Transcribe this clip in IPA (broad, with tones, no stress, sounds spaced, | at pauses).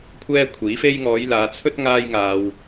kʷʰ ɛː˥ kʷʰ iː˨˥ f e˥ j ŋ ɔː˨˧ j l aː˨˧ t͡sʰ ɵ˥ t̚ ŋ aː˥ j ŋ aː˧ w